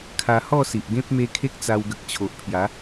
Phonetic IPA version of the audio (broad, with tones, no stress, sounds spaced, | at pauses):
kʰ a˧ h ɔ˥˧ s i˨ ʔ ɡ ẽ˦ p̚ m e˧ kʰ e˦ k̚ t͡s a˧ w ɡ ə˨ k̚ t͡ɕʰ o˨ ʔ pʰ j a˨˦